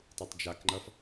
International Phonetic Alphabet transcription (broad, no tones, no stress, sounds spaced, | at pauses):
tˤ u tˤ d͡ʒ a k ŋ͡ǃ ʌ f